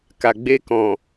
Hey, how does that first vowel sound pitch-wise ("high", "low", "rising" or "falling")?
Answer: low